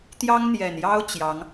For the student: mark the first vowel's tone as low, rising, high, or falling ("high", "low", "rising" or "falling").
high